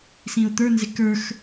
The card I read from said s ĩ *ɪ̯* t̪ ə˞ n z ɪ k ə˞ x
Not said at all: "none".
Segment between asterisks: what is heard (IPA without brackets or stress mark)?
ʊ̯